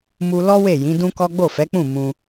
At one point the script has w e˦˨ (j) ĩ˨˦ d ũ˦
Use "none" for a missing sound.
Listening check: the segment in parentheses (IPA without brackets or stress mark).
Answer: j